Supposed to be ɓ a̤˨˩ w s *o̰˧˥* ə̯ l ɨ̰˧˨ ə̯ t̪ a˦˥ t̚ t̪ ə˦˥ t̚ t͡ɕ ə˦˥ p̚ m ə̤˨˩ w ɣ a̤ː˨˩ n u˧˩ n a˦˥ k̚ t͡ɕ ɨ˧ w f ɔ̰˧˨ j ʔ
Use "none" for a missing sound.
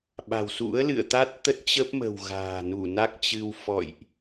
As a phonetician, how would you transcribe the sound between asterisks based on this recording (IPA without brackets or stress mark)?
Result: ṵ˧˥